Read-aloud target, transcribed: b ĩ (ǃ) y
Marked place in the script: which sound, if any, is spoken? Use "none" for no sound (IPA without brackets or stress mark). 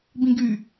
ɡ